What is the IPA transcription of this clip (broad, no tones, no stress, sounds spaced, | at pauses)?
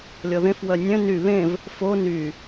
lʲ ɔ ð ẽ f w œ nʲ œ̃ n y β ẽ v | f o n y